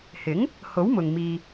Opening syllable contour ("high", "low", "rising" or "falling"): rising